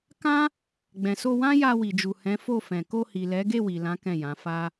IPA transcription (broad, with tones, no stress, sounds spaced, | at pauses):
k ã˦ | ɡ͡b ɛ̃˨ s o˧ w ã˦ j a˧ w i˨ d͡ʒ u˨ h ɛ̃˨˦ f o˦˨ f ɛ̃˨ k o˧ h i˨ l ɛ˨˦ ɡ e˦˨ w i˨ l ã˨˦ k ɛ̃˦˨ j ã˨˦ f a˦